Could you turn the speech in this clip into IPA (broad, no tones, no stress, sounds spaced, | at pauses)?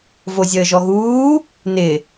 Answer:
v o zʲ əː ʒ ɔ ɣ uː | n ɪ